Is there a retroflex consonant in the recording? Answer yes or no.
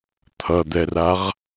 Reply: no